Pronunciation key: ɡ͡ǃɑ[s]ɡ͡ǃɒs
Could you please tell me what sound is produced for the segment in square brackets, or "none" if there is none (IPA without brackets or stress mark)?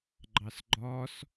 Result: s